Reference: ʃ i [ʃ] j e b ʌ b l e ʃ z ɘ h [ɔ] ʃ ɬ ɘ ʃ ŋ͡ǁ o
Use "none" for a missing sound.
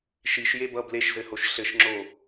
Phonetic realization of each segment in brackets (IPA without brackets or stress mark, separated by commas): ʃ, o